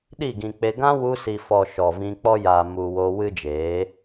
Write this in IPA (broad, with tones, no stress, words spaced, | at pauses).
ɗi˦˨ɡĩ˨k͡pe˧ ɡã˦wu˧si˨fɔ˨ ʃɔ˨vĩ˧k͡pɔ˦ jaː˨mu˨wo˧ wɨ˦d͡ʒeː˨˦